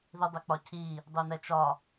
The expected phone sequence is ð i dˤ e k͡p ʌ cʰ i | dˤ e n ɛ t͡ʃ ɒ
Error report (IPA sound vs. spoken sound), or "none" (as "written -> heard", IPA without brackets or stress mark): ʌ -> ɒ